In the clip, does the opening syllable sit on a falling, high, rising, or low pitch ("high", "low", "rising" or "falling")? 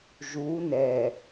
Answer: rising